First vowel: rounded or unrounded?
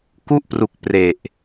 rounded